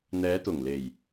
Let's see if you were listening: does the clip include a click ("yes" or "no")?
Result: no